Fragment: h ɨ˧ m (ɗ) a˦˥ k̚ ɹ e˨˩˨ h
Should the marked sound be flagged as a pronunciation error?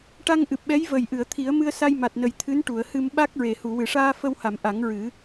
yes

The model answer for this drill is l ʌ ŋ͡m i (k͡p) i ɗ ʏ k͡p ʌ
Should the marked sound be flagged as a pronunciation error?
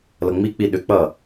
no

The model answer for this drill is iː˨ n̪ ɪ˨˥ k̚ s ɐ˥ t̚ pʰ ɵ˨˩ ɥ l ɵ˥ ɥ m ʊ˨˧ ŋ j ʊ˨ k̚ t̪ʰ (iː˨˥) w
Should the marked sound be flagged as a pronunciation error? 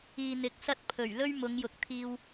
yes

